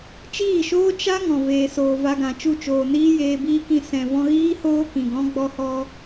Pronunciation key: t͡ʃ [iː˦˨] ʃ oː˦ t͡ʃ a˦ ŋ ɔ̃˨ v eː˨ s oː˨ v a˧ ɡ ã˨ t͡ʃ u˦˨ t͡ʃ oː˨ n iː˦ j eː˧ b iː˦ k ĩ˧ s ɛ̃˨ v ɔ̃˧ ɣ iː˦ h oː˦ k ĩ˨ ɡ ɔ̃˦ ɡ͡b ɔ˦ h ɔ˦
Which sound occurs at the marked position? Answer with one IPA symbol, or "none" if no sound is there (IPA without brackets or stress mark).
iː˦˨